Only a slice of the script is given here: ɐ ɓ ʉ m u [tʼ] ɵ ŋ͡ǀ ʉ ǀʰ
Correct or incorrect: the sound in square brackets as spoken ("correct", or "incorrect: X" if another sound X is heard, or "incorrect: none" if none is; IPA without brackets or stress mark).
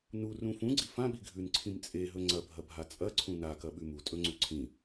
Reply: correct